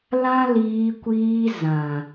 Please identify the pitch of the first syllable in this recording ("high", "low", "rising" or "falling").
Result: high